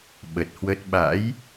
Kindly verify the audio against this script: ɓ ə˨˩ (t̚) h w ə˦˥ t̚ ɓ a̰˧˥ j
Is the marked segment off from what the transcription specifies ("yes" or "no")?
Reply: no